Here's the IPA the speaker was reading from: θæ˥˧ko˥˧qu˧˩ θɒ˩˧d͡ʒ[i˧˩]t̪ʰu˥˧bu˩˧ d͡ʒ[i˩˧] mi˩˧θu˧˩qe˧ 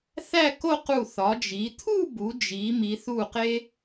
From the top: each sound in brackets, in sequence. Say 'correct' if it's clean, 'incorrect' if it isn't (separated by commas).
incorrect, correct